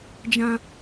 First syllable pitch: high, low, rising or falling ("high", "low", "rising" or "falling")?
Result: high